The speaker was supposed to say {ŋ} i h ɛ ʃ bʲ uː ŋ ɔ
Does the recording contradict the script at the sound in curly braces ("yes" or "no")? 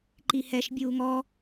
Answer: yes